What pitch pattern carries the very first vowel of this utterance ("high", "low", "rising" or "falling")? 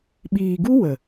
low